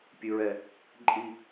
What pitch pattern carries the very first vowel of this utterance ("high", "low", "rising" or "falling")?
high